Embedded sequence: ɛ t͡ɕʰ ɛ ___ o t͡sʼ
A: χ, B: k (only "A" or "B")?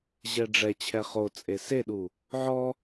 A